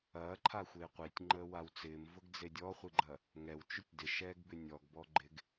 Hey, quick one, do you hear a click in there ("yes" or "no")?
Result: yes